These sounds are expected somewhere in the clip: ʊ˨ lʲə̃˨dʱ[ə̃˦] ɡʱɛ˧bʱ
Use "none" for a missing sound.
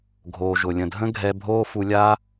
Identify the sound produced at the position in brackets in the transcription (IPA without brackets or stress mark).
ə̃˦